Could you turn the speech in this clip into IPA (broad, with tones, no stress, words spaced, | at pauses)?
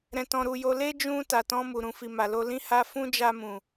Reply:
ɾɛ̃˧tɔ̃˧ɾu˧jo˦ le˦d͡ʒũ˧ ta˨tɔ̃˧ mu˨ɾũ˨fi˨ ma˨lo˧ lĩ˧ha˧ fũ˦d͡ʒa˧mũ˨